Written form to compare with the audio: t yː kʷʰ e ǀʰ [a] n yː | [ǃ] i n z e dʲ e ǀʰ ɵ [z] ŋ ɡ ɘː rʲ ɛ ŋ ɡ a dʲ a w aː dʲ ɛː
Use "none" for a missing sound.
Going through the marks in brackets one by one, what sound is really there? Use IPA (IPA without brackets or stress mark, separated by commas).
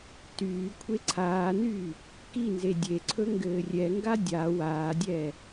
aː, k, none